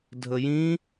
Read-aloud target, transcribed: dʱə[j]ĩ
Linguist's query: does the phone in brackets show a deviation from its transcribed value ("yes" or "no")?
no